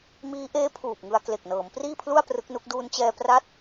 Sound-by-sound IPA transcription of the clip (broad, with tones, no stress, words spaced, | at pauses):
miː˦˥ʔeː˦˥ pʰuː˨˩p̚ŋɯ˧a̯ kle˨˩k̚nɤː˩˦mpriː˥˩pʰlu˥˩a̯ prɯ˦˥k̚nu˦˥k̚ duː˧nt͡ɕɛː˧ pra˦˥t̚